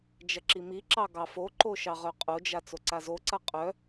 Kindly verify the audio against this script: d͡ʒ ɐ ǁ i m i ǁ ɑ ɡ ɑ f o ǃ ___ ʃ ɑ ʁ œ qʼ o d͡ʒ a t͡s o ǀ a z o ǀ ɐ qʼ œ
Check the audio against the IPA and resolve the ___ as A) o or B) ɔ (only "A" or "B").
A